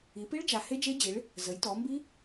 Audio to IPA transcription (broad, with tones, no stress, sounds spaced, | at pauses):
i˩˧ p i˦˥ ɭ d͡ʒ a˩˧ h e˦˥ d͡ʒ e˦˥ d͡ʑ i˩˧ ɭ | z ə˩˧ j t ɔ˩˧ m b i˦˥